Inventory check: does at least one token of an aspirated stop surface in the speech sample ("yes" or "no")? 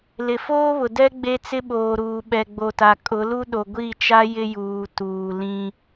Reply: no